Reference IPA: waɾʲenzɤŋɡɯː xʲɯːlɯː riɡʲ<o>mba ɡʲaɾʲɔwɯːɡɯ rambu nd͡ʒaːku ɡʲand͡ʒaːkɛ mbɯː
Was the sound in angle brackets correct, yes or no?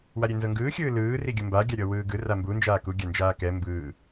no